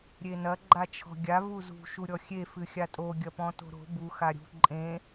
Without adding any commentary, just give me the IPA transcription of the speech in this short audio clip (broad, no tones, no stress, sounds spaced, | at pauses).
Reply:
ɾʲ e n ɐ ɡ͡ǃ a t͡ʃʰ ɔ̤ ɡʲ a v u z ṳ ʃ u ɾʲ ɔ xʲ e f ɨ xʲ a tʼ o ɡʲ ɐ p ɔ̃ t o̤ ɾ o̤ b u x a ɾʲ ṳ ǃʼ ẽ